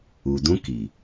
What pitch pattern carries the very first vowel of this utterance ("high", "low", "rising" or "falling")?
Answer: low